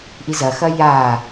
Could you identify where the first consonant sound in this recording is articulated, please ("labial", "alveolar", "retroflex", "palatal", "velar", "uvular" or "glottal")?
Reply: glottal